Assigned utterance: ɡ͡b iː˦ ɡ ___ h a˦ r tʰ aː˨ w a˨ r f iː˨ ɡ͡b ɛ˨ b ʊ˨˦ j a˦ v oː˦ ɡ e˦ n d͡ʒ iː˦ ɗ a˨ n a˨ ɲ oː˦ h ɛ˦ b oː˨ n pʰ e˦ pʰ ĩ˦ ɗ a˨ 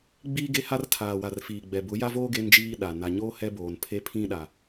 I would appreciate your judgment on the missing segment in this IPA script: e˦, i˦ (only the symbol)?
e˦